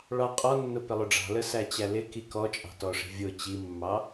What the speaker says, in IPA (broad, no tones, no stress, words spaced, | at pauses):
ɭɑqʼɔnːʊ pɪlˠʊɖ͡ʐɑ̤lə sæt͡ɕælɪki kɔt͡ʃʼɑ̤tɔʂi̤ vʲʊ t͡ɕimːɑ